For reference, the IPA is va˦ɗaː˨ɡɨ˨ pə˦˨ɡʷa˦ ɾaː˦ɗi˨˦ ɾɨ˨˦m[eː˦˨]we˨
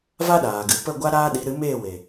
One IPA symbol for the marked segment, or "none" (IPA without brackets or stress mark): eː˦˨